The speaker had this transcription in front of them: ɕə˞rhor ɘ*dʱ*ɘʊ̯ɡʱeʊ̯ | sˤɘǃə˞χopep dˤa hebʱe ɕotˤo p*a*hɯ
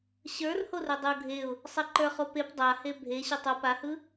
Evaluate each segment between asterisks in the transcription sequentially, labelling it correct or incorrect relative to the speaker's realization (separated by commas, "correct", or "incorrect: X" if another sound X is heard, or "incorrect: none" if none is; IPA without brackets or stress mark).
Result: incorrect: dˤ, correct